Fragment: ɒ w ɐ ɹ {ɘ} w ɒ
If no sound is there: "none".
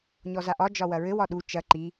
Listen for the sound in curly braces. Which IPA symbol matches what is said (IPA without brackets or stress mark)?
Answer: ɘ